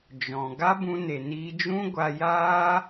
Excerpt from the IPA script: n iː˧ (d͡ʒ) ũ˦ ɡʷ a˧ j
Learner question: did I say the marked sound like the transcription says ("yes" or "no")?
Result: yes